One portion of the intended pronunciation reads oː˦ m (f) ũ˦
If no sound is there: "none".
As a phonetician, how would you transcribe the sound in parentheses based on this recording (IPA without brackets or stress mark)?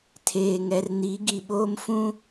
f